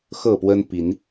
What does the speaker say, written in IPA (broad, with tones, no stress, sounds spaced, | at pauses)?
x ɤ˥˨ p w ə˦ n p i˨˦ n